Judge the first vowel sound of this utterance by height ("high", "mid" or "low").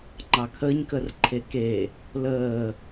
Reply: low